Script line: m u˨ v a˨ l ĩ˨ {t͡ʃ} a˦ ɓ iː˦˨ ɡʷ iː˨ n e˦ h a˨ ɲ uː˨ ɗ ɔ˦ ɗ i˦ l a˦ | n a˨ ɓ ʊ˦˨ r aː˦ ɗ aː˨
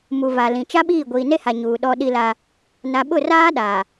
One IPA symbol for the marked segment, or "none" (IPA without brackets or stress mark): t͡ʃ